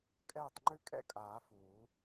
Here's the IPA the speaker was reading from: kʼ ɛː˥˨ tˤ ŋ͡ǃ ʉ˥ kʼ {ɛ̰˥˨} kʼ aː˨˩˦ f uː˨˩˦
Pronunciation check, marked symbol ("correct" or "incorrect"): correct